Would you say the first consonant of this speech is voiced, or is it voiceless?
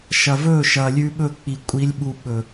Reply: voiceless